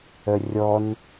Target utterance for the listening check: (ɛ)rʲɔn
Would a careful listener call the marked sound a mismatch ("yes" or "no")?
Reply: yes